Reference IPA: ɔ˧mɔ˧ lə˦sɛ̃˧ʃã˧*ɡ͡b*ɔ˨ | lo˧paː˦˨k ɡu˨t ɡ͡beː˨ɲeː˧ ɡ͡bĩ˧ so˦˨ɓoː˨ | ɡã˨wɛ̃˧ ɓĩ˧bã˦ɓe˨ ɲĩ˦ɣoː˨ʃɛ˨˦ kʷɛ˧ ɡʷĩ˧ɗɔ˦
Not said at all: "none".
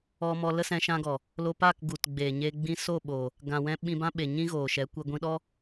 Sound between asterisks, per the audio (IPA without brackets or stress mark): ɡ